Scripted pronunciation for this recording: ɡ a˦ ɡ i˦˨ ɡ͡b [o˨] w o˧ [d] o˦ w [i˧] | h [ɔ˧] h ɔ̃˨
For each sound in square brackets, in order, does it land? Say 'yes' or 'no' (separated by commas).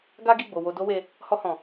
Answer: yes, yes, no, yes